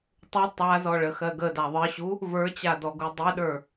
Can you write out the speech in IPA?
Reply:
tˤu tˤazɔ ɭəxɜɡəda ðˤɨɕu | və˞t͡ɕa dɔɡudˤiɗə˞

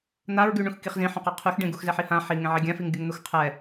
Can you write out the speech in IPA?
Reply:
n̪aɹɡy ɳũxkiχzĩ ħõqeqʰyxɖẽ ɡuxzɛħihã ħi ŋẽʕiɡʲãfiŋ ɡʲuŋn̪uxqʰɛ

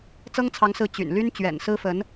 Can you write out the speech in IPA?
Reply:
t͡sɤ˥ŋt͡sʰɑ˧˥ŋsɹ̩˧˥ t͡ɕy̰˨˩n ly˥nt͡ɕɥɛ̰˨˩nsɹ̩˥fə˧˥n

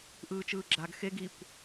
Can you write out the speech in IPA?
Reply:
ʔɯːt͡ʃɯːɡ͡ǁaɡ xeɡ ikʷ

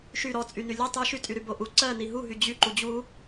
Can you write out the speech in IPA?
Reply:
ʃy ɾɔt͡sʼyny lʲu tˤy ʃytʼyɾybo ʔu ǀɜ niɦuɦy d͡ʑy ǃud͡ʑu

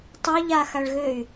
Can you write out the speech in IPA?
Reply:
tˤøʎaxaɭɣøy̯

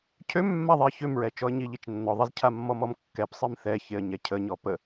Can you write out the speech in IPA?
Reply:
cʰømːaðˤeə̯ çømɹɛt͡ʃɔə̯ ɲiʎit͡ʃnːɔðˤiz cʰamːɔmɔmkːɛp sˤimθɛçeə̯ ɲɛcʰəɲɔ pə

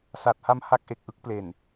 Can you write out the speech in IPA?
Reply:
sa˨˩t̚ ha˦˥mha˦˥k̚ʔe˨˩k̚ ʔɯ˥˩k̚ple˨˩n

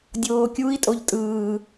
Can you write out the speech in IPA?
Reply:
dʲoːkʲui̯ tʼoʎtʼɯː

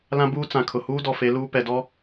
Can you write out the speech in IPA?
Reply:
lã˦buː˦t͡sã˨kʰʊ˨ huː˦dɔ˨fe˨˦ luː˦ pɛ˨dɔ˦

